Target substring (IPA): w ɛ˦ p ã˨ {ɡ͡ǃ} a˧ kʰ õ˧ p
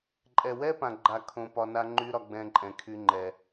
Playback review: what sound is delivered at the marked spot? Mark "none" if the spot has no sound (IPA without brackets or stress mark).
ɡ͡ǃ